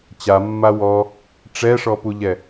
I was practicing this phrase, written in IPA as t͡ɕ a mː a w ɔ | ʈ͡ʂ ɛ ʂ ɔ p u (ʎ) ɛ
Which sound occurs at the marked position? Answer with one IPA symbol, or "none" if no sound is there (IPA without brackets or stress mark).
ʎ